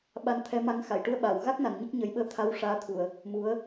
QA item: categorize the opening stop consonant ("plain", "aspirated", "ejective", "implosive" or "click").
implosive